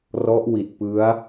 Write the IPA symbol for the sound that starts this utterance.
r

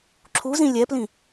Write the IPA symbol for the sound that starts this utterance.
ǁʰ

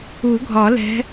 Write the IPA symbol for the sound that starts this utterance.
u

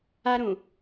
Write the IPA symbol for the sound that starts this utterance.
a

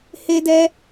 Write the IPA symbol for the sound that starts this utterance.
h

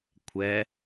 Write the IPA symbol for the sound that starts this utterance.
kʷʰ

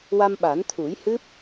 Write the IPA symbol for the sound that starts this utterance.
w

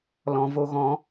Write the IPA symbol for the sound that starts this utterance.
l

